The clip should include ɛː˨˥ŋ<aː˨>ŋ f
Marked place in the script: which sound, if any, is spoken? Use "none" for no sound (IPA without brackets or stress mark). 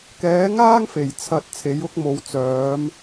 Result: aː˥